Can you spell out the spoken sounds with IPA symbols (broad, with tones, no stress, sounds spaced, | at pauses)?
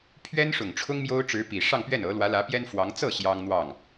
pʰ ɥ ɛ˥ n ʂ ʊ˨˩ ŋ ʈ͡ʂʰ ʊ˥ ŋ m j o˥ ʊ̯ ʈ͡ʂ ɻ̩˧˥ p i˨˩ ʂ ɑ˥˧ ŋ p ɥ ɛ˥˩ n ɤ˧˥ l w ä˧˥ l ä˧˥ p j ɛ˥ n f w ɑ˧˥ ŋ t͡s ɤ˥˩ ɕ j ɑ˥ ŋ n̪ w ɑ˥˩ ŋ